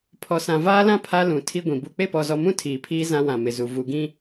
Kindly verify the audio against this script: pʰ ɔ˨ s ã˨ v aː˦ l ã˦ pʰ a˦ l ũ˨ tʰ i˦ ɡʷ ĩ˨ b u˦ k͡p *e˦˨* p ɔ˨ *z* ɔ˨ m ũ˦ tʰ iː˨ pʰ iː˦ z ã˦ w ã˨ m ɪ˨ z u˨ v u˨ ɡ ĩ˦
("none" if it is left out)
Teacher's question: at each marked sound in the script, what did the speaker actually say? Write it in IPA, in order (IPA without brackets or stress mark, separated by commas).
e˦˨, z